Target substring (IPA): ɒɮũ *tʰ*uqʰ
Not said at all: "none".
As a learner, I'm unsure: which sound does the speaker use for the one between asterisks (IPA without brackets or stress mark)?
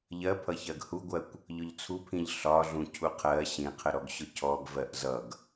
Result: cʰ